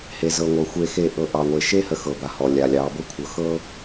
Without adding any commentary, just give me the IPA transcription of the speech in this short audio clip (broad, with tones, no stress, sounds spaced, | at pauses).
h e˨ z ɤ˨ ŋʷ ɤ˨ xʷ e˨ x e˨ ʔ ɤ˨ ʔ ɑ˨ ŋʷ e˨ ʃ e˦ h ə˨ x ɤ˨ b a˨ h ɔ˨ lʲ a˨ lʲ ɑ˨˦ b ɤ˦ kʷʰ ɤ˨ x ɤ˦